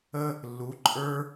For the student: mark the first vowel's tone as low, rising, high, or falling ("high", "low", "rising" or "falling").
high